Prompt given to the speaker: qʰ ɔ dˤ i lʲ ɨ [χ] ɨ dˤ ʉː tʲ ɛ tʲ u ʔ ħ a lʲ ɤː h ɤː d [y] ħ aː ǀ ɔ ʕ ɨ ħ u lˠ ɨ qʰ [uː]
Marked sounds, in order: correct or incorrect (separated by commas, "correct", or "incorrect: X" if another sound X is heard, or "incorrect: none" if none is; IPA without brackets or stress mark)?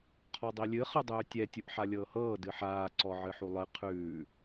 correct, incorrect: ɨ, incorrect: ʉː